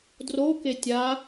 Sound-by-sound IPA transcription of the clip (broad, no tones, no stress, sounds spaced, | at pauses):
d r o k e tʲ a